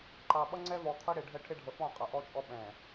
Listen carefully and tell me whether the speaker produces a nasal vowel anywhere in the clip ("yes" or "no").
yes